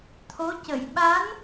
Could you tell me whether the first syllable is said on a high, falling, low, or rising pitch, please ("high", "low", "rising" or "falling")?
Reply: rising